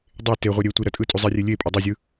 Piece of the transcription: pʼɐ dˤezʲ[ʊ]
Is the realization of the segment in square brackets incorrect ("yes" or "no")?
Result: yes